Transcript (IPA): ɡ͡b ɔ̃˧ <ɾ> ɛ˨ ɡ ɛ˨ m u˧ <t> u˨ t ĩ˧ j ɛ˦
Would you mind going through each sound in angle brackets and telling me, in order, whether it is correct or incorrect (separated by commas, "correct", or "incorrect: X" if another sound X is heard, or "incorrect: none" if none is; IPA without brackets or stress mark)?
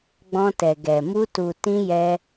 incorrect: t, correct